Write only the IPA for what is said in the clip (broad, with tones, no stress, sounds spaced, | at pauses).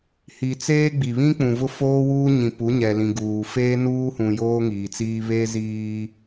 h i˨ t͡s eː˦ ɡ͡b i˨ β ĩ˦ k͡p ũ˨ v ʊ˦ f oː˦ w uː˦ ɲ ĩ˨ p u˨˦ ɲ ɛ˨ l ĩ˨ ɡ uː˨ f eː˦ n uː˦ h ũ˨ j oː˦ ŋ iː˨ t͡s iː˦ β e˦ z iː˦